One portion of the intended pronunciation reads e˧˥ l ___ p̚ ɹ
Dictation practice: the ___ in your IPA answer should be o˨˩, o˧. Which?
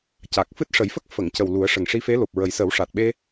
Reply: o˨˩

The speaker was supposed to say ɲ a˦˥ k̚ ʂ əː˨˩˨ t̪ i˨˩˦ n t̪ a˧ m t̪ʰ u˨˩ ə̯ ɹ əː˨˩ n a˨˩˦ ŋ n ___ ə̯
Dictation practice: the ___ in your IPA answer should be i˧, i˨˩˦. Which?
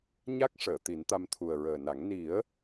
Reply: i˨˩˦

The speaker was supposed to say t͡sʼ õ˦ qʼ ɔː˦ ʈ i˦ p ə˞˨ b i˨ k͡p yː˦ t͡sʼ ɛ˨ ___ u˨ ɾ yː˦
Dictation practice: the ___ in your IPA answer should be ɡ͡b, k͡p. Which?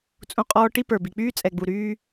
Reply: ɡ͡b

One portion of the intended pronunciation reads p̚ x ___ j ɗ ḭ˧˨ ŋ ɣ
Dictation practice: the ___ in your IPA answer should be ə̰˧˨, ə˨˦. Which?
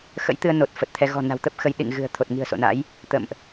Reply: ə˨˦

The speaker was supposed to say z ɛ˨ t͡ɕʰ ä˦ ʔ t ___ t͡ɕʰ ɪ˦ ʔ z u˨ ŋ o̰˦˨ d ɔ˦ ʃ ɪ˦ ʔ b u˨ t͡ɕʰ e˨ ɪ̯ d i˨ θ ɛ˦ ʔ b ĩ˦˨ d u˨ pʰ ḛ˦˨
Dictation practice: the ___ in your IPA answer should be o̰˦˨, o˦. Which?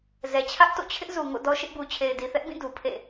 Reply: o̰˦˨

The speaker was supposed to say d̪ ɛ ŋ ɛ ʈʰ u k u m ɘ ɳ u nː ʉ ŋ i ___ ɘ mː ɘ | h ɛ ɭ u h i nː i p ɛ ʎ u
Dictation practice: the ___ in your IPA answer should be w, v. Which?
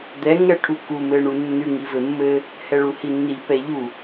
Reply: v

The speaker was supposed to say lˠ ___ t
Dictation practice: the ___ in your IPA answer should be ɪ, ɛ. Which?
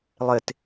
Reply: ɪ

